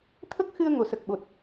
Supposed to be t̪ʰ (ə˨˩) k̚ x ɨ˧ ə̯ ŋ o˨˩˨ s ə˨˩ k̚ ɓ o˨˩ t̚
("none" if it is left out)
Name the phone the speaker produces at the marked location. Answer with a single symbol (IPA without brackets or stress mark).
ə˦˥